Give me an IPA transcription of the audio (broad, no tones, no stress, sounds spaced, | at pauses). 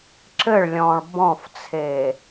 ǁ ɘ ɭ lʲ ɔ̃ː ɭ b ɔ̃ f t͡sʰ e